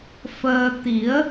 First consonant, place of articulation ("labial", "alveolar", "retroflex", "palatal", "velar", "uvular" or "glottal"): labial